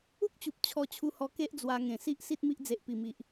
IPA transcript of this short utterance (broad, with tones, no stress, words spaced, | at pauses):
u˦k̚t͡ɕu˨p̚ t͡ɕʰɔ˧t͡ɕʰu˧hɔ˧ ke˦ʔd͡zwa˧ ŋẽ˨˩si˦ʔ si˦t̚mi˦ʔ d͡ze˨ʔpi˨˩mi˨ʔ